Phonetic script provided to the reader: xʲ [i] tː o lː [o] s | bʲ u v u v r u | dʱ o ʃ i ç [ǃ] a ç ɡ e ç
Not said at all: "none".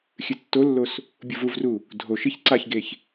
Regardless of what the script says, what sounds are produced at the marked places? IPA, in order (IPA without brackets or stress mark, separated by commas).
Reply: ɨ, o, ǀ